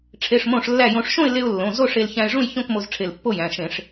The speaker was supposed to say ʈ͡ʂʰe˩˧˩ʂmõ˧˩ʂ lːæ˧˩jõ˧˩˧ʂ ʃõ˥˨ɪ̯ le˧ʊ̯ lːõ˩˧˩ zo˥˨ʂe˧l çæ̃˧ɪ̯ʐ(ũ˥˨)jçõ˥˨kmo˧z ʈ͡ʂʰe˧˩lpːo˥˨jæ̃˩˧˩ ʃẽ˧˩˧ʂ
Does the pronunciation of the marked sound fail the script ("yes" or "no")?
no